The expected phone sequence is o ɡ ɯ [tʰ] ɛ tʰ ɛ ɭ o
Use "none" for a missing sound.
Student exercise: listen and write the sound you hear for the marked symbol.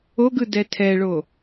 d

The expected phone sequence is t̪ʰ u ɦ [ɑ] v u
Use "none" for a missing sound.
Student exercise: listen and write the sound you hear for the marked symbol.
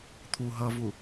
ʌ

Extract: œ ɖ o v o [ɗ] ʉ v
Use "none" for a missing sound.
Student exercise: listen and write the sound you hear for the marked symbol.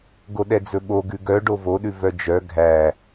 ɗ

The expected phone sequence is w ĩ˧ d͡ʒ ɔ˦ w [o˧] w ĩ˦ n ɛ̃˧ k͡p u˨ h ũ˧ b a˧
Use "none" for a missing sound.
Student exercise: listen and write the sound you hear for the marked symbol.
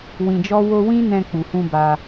o˧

